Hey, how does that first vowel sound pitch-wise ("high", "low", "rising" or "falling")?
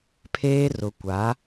high